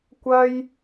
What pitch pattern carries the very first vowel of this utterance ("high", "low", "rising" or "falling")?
high